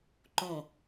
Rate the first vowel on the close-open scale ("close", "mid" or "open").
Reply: mid